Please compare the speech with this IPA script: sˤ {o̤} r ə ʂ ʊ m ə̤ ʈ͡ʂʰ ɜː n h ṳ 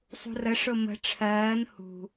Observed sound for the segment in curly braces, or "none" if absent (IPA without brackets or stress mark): ṳ